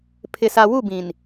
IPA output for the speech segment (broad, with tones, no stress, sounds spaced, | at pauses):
pʰ ɪ˨ s a˨ w u˦˨ b ĩ˨ n